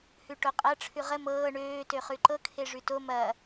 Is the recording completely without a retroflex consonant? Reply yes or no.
no